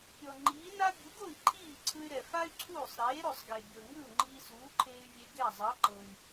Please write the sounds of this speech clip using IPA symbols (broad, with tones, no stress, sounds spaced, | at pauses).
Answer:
pʲ ɔ˩ ŋ͡ǃ iː˩˥ n a˥ bʲ u˩˥ ɡ o˥˩ i̯ ǃʰ iː˥˩ ǀʰ ɯ˧ y̯ ɾ ɛ˩ f a˥ y̯ ǀʰ uː˥˩ sˤ ɾ eː˩˥ ɾ o˩ sˤ ɡ e˩ bʲ ɤ˩ ŋ ɯ˥˩ u̯ ŋ͡ǃ iː˧ s uː˩˥ ǃʰ eː˧ y̯ vʲ e˧ ɡ ɛ˥˩ zˤ ɤ˩˥ ǃ ɤ˩ i̯